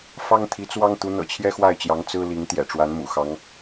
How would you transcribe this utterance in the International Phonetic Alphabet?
f ɑ˥ ŋ t̪ʰ i˧˥ t͡s w ɑ˥ ŋ t̪ u˧˥ n̪ ɤ̰˨˩ t͡ɕʰ j ɛ˥ x w a˥˩ ɪ̯ t͡ɕ j ɑ˧˥ ŋ t͡s ɹ̩˥ l i˧˥ ŋ t̪ j ɛ̰˨˩ ʈ͡ʂ w a˧˥ n m ṵ˨˩ x ɑ˧˥ ŋ

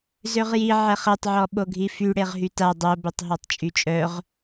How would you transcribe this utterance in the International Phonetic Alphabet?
z ø ʁ j i ʕ ɛ χ e tˤ ʕ ɔ ɓ o ɡʱ i f y ɽ e ʁ ɦ y t a dˤ o b e tˤ ɦ ɔ tˤ t͡ʃʼ y t͡ʃʼ œ ʁ

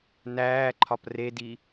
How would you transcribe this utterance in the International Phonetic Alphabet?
n æː ǃʰ ɒ p r e d i

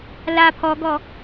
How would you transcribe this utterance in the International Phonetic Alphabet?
l a pʰ ɔ ɡ ɔ

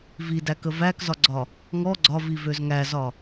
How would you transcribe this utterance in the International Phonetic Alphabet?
v i d æ k ə v æ k z ɒ ɡ͡ǀ ɒ | ŋ ɔ ɡ͡ǀ ɒ v i v ø z ŋ æ z ɒ

